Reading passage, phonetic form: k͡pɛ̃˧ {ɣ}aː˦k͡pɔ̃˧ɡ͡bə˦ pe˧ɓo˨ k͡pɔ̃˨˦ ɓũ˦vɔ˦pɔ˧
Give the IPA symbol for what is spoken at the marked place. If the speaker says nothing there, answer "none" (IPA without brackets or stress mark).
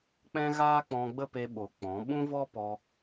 ɣ